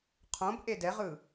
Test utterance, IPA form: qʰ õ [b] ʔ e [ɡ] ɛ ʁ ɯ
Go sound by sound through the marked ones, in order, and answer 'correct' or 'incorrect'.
correct, incorrect

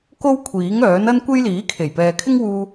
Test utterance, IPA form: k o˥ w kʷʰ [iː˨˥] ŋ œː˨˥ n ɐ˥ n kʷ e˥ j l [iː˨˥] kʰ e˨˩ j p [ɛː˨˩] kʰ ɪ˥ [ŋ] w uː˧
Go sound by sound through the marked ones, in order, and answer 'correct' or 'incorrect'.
correct, correct, incorrect, correct

